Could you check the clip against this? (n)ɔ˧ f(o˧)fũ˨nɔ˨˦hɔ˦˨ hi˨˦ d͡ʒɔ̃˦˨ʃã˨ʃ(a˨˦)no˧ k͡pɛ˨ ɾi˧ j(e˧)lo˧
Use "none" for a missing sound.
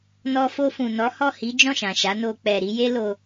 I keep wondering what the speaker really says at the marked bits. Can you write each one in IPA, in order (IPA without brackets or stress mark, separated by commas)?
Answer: n, o˧, a˨˦, e˦